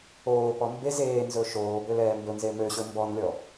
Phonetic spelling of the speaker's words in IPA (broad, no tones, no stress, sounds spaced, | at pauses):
oː p ɔ m b e z eː n z ɵ ʃ oː b ø l ɛː m b ɵ n z e m ø ɕ ɵ m b ɔ n lʲ ɔ